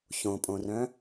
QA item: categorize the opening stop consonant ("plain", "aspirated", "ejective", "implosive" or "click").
ejective